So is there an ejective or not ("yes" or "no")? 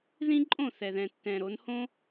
yes